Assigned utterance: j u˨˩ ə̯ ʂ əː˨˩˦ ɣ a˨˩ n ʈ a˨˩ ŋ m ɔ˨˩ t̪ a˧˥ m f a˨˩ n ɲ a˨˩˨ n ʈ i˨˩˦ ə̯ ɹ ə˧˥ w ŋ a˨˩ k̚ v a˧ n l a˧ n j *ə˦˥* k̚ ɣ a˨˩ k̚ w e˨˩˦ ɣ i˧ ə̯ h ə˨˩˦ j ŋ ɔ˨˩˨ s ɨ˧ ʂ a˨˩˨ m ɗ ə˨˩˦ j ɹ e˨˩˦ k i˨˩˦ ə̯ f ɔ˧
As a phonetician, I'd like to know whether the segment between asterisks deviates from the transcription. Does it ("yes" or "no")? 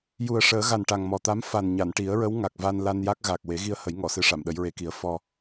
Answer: yes